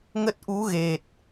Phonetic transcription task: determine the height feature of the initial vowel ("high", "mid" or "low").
mid